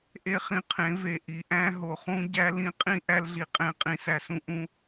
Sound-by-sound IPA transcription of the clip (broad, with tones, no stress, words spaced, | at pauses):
ʔe˦χĩ˧qʰẽ˨˦ ve˨ ʔi˨ʔæ̃˦ɦo˨χũ˦ ɟæ˦ lĩ˧qʼĩ˦ ʔæ˦lɮi˧qʼẽ˦˨qʼĩ˧ sæ˦sũ˦ ʔũ˦